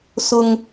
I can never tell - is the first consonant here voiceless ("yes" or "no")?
yes